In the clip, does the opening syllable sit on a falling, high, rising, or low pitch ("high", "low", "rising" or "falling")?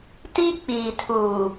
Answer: high